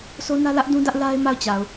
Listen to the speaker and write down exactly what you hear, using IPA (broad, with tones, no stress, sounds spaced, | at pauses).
s o˦ n ä˦ l ä˦ ʔ d ũ˦ d ä˦ ʔ l a˦ ɪ̯ m a˦˨ ʊ̯ t͡ɕ a˨ ʊ̯